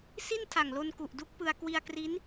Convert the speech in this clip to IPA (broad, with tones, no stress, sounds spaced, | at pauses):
s i˥˩ n tʰ a˨˩ ŋ l o˧ n k u˨˩ ʔ d u˦˥ k̚ p ɯ˧ a̯ k w i˧ a̯ k r i˦˥ n